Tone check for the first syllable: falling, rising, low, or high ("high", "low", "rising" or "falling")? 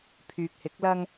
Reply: low